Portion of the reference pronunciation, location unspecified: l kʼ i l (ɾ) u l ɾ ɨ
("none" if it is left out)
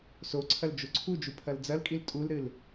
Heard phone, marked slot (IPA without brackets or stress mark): tʼ